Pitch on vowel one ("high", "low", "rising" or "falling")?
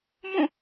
falling